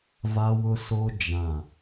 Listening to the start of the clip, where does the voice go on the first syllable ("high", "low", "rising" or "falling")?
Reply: high